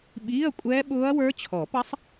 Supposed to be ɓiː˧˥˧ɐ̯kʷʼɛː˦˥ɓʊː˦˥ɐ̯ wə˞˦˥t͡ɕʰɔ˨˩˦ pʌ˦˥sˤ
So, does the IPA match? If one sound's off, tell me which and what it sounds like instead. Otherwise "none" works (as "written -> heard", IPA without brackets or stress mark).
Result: none